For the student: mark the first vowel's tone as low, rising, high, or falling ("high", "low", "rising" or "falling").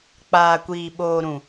low